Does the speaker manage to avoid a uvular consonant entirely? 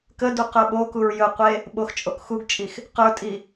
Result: no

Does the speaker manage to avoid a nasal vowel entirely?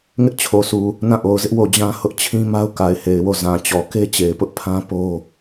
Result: no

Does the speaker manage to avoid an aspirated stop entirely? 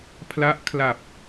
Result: no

